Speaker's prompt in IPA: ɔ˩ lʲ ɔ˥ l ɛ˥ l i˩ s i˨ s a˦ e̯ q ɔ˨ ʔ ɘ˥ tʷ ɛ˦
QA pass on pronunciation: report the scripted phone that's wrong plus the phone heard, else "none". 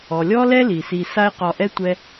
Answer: ɘ˥ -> ɛ˥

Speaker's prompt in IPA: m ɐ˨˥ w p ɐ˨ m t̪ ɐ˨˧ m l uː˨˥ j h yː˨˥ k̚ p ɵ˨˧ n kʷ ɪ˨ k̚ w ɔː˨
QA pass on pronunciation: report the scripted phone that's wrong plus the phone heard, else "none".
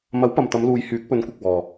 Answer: uː˨˥ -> uː˨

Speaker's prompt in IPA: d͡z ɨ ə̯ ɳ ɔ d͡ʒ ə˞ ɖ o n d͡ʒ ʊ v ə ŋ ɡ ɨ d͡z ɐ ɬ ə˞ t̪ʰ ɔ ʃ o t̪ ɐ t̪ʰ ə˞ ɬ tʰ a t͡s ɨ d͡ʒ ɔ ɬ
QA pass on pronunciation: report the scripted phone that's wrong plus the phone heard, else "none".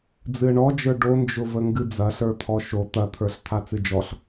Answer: none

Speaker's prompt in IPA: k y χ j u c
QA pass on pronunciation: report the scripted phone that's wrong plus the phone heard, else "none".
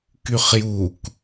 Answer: c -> k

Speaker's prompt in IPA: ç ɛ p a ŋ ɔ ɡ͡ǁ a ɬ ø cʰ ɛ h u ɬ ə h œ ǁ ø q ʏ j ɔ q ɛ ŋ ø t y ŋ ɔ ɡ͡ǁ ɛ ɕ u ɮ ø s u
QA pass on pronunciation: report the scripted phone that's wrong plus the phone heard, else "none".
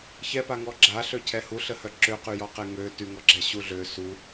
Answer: ʏ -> y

